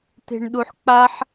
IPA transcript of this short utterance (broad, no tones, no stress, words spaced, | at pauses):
te̤ɳɗuħk͡paħ